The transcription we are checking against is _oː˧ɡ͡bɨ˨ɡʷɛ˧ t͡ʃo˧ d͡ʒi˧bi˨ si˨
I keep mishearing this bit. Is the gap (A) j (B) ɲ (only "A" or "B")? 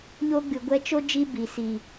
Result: B